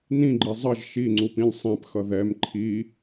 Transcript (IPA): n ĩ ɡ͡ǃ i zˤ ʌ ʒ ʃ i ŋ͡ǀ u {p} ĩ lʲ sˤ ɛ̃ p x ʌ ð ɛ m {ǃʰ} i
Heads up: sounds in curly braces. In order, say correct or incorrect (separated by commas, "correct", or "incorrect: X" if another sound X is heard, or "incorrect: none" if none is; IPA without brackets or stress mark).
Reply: correct, correct